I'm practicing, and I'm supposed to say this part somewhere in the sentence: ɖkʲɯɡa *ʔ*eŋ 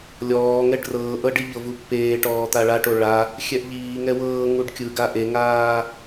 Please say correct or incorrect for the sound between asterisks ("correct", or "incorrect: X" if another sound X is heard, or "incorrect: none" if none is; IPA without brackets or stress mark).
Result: correct